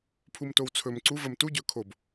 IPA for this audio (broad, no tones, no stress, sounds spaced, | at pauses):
pʰ u m t o w t͡sʰ ɵ m ǀ u v ə m t u ɟ ɵ kʰ o b